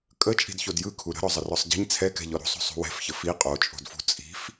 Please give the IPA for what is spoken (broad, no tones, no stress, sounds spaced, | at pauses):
kʼ ə t͡ʃʼ i̤ d ç o d j ɯ kʰ u ɾ ə̤ ɾ ɔ zˤ ə r ɔ sˤ ɟ i̤ ɲ t͡sʰ ɛ k ɛ̤ ʎ ɔ ɾ ṳ sˤ o̤ sˤ ṳ w ɛ̤ f ç ə f i qʼ o t͡ʃʼ o̤ d f ṳ t͡sʼ i̤ f